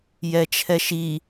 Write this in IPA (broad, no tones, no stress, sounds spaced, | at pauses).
j ɛ t͡ʃʰ ɛ ʃ i